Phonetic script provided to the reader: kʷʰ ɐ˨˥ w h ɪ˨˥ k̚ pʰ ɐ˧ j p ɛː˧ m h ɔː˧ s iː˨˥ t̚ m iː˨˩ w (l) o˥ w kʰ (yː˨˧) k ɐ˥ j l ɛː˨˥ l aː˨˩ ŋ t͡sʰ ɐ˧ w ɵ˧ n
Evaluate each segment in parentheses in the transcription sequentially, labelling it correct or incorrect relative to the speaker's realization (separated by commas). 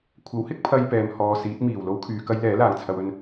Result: correct, correct